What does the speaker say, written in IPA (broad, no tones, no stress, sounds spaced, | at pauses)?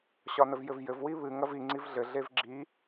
ɕ ɒ n ə v j ɘ v j ɘ v w i β ɨ ŋ ɐ v i ŋ͡ǀ i v ɮ ɘ ɮ e v ɡ͡ǁ i